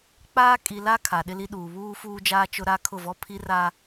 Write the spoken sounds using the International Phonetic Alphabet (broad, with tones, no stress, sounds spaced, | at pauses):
k͡p aː˦ kʼ i˨ l a˦ kʰ a˨ ɗ ɪ˦ l i˦ ɗ uː˨ β uː˦ f uː˦ d͡ʒ aː˦ t͡ʃ ʊ˦ ɾ a˦ kʰ ʊ˦˨ v ɔ˦ pʰ i˦ r a˦